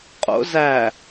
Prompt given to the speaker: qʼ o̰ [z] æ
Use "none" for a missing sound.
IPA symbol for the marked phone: z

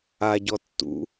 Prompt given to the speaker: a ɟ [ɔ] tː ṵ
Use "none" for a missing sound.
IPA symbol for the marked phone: ɔ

